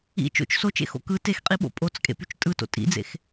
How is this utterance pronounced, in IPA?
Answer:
ḭ t͡ʃo̰t͡ʃ sot͡ʃḛxo̰ kɯ texqʼiɓo̰ pʼot͡skʼḛpyt͡ʃ tʼɯto̰ tʼḭd͡zḛx

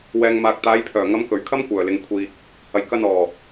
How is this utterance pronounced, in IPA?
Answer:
wɛː˨ŋmaː˨k̚ t̪aː˨˧jpʰœː˨˩ŋɐ˨˧m kɵ˨˩ɥkʰɐ˥m kʷœː˨˩lɪ˨ŋkʷʰiː˨k̚ | hɐ˨jkɐ˧nɔː˨˩

